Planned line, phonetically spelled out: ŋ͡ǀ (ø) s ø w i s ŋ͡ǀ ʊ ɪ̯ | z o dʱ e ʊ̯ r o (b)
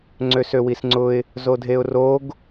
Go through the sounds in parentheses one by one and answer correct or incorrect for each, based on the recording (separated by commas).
correct, incorrect